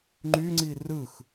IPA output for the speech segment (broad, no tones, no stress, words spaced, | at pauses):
ŋ͡ǃyŋ͡ǀi rɯx